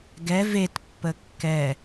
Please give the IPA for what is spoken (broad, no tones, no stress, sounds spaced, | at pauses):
ɡ ɛ v e t pː ə kː ɛ